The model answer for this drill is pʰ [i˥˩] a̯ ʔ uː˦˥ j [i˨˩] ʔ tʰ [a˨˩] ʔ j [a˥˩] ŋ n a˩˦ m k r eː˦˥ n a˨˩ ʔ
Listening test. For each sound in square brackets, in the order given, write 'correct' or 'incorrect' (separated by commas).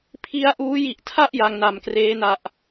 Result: incorrect, correct, incorrect, incorrect